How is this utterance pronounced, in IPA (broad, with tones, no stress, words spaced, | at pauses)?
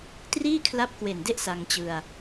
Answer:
triː˥˩kʰla˦˥p̚ kwe˨˩nde˥˩ʔ sa˧ŋt͡ɕɯ˧a̯